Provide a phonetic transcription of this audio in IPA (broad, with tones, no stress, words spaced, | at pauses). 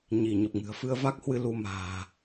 ɲi˧˩ɲə˨˩p̚ŋɨ̤˨˩ə̯ fɨ˧ə̯va˦˥k̚hwɨ˧ lu˧ma̤ː˨˩